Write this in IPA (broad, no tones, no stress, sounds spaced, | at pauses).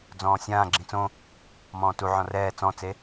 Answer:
d͡z ɔ̃ː sʲ ãː ɡ͡ǁ ĩ t͡s õ | m ɔ̃ː t u ʕ ɔ̃ r ɛː t͡s ɔ̃ t͡s e